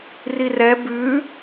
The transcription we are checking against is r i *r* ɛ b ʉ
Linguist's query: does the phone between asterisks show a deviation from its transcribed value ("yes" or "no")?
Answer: no